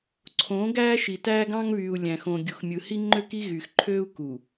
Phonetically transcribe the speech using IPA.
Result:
ǀʰ õː˨˦ ɡ æː˦ ʃ i˨ t æː˦ ɡ ɑ̃˦ ŋ β yː˨ u̯ lʲ æ̃˨ x õ˨ ɡʲ u˨ x mʲ ɯ˨ h i˦ ŋ͡ǃ ø˦ k i˦ ɣ y˨ x ǃʰ øː˦ u̯ k u˨

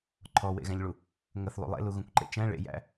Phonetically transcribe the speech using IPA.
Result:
ǃʰ ɔ w ḛ ɣ æ̃ ʎ ɭ u | ŋ ə θ lˠ ṵ lˠ ḛ l u ɣ ũ kʷ ǃ ḛ t͡ʃ æ̃ ɭ ḛ j æ̰

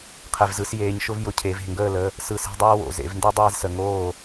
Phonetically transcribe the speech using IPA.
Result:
qʰ e˩ v z ɯ˩˧ s j eː˩˧ ɲ ʃ ʊ˦ v j ʊ˩˧ cʰ e˩˧ v e̤˧˩ ŋ ɡ əː˥˨ l ə˩˧˩ | s ɯ˧˩ s e̤˦ dˤ əː˦ w o̰˩ z ḛ˩˧ v n d ɯ˦ dˤ eː˦ z s ə˩˧ ŋ oː˥˨

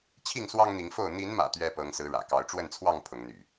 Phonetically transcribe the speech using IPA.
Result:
t͡ɕʰ i˥˨ ŋ s w ɑ˦ ŋ n̪ i˨˦ ŋ f o˥˨ ʊ̯ n̪ i˨˦ n m ä̰˨˩ t̪ ɥ ɛ˦ p ɤ˨˦ ŋ s ɹ̩˨˦ ɻ ä̰˨˩ k ɑ˨˦ ʊ̯ ʈ͡ʂ w ə˥˨ n t͡sʰ w ɑ˥˨ ŋ pʰ ʊ˨˦ ŋ n̪ y̰˨˩

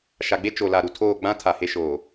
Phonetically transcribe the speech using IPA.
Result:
ʃ a˨ ɡ͡b e˦ t͡ʃ o˨ l a˨ ɾ u˨ tʰ oː˦˨ ɡ͡b ã˦ tʰ a˨ h e˦ ʃ oː˨

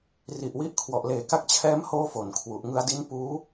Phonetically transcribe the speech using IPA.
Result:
r i˨˩ ʔ w i˦˥ ʔ kʰ w ɔ˨˩ ʔ l eː˨˩ k a˦˥ k̚ t͡ɕʰ ɛː˦˥ m h oː˥˩ f o˨˩ n kʰ w u˨˩ ʔ ŋ ɯ˧ a̯ d i˦˥ n p uː˦˥

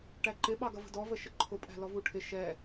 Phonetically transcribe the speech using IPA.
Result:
ʈ æ ǃ ɪ ɓ ɑ ɡ ʌ v ə̤ d ɔ v ə ʃ ə ǃʰ ʊ pʼ æ̤ l ɔ v u ʈʰ ɪ ʃ ɛ

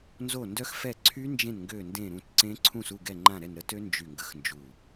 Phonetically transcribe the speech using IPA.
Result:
n z o˦˨ n d œ˦˥ x f ɛ˦˨ ǀʰ y˦˥ n d͡ʒ ẽ˦˨ n ŋ ɡ ø˦˨ n d ẽ˦˨ ɾ ũ˦˨ t ǀ ẽ˦˥ ǀʰ ũ˦˨ s u˦˨ ɡ ɛ˦˨ ŋ͡ǃ ã˦˨ ɾ ɛ˦˨ n ɾ ə˦˥ t ø˦˥ n d͡ʒ y˦˨ ŋ ɡ ə˦˥ x n d͡ʒ u˦˨

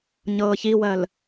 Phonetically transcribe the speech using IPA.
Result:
ɲ ɤː ç i w ɜ l

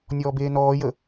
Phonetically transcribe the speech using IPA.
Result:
nʲ ɔː b eː n ɔː j ə

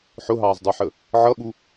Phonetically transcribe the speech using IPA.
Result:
ħ ʊ ɦ ɑː z dˤ ə˞ ħ ə | ʕ ʌ ɓ u

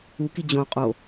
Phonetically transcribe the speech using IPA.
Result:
u k i d͡ʑ õ qʼ o

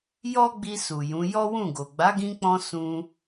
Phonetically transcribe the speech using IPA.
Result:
j ɔ˦ ɡ͡b i˧ s u˨ j ũ˨˦ j ɔ˦ w ũ˦˨ ɡ o˨ ɡ͡b a˨˦ ɡ ĩ˧ k͡p ɔ̃˧ s ũ˧

